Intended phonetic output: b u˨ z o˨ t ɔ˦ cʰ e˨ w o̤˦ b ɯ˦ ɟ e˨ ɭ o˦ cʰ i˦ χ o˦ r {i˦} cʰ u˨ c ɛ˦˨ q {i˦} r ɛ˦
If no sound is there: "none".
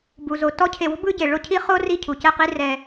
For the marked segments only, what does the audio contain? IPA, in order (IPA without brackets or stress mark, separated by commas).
i˦, i˦